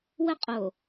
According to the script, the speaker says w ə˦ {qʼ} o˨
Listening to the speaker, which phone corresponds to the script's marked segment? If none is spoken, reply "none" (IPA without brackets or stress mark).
qʼ